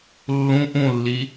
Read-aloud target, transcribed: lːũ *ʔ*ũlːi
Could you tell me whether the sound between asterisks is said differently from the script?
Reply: no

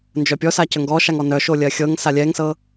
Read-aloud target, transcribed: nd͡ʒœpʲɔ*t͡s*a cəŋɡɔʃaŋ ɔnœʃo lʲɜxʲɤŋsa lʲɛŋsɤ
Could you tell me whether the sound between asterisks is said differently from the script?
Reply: yes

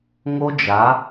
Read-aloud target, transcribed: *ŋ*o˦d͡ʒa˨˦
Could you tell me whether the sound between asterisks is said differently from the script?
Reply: no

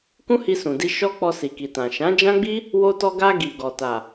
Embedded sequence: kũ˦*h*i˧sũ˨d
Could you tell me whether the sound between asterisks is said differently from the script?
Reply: no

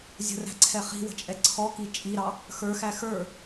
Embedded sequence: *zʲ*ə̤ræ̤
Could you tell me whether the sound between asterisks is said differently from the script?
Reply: no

